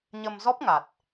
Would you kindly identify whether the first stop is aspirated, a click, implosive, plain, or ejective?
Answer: plain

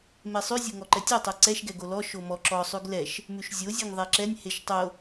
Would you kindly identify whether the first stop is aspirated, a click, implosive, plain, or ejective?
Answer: click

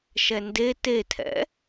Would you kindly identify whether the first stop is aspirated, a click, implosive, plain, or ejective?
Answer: plain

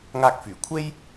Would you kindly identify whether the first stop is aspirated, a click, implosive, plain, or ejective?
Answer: plain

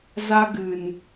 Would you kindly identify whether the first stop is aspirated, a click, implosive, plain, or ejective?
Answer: plain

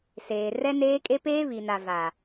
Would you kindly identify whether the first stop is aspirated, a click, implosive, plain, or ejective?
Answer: ejective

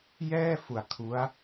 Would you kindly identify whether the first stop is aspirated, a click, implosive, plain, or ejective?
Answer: aspirated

